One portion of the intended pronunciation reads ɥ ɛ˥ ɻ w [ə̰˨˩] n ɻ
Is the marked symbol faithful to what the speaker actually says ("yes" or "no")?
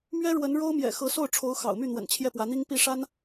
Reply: no